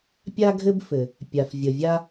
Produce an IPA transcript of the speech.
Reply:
pʲa˥ɡʱɘ˥bfɘ˩ | pʲa˩fvʲə˩vʲa˥

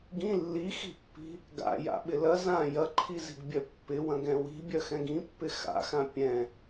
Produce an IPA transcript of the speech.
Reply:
ɡĩ lːixi̤pːi̤ | ɡa̰ja̰ɓɪ lɐ zã jɐǃʰizi̤ɡbʲœ pːɪwɐ̃ɡɛ̃ wi̤bʲœxɛ̃ɡ ĩpːɪ xa̰xã pʲɛ̃

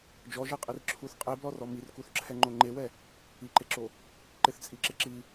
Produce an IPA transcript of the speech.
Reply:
d͡ʒɔʒɛqʼir ǁʰuθ qʼeblɔrɔ mirkuθǁʰɛŋ͡ǃo ŋ͡ǃewɛ | iǃeǁo | ǃɪθt͡sʼiǁɪ ǁi

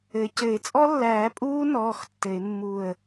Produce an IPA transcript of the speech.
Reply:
ɘ˩˥cɘ˨˩˦ɪ̯ t͡sʼɔ˦˥lːæː˨˩˦pʼuː˦˥nɔː˩˧˩x tːɘ˨˩˦ɪ̯ mːu˦˨ə̯

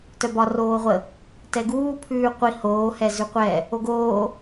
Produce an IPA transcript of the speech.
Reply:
tœbɒ roːʁʷə | tɛɡuː pʰʉːqʷi hoː hɛzʉqʷɛ | oɡoː

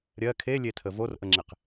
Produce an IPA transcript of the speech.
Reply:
ɾʲɜ kʰelʲetʰə vorʔəŋ͡ǁeq

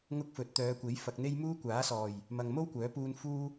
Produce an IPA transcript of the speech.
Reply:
ŋʊ˥k̚fɵ˨˥t̚ t̪œː˨˧kʷe˨˥j fɐ˧k̚n̪e˥j muː˥kʷaː˨˥sɔː˨˩j | mɐ˨ŋmo˥wkʷœː˨˥puː˧n fuː˥

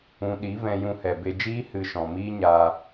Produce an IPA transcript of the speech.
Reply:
ũ˧ ɗi˨˦vɛ̃˧ jũ˧hɛ˨be˧d͡ʒiː˦ hɨ˧ʃɔ̃˨miː˦ ɲaː˧

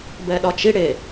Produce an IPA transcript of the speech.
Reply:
bɛɗɒt͡ʃi ɽe

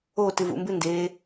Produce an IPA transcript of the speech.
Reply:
otɨ vṵmbɨ ndeː

